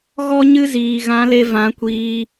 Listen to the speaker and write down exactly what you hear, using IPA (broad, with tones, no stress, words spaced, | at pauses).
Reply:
ɣɔ˦ɲɨ˦ ziː˨ɣã˨˦le˧ vã˨˦kʷiː˧